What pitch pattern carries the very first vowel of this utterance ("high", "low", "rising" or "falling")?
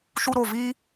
high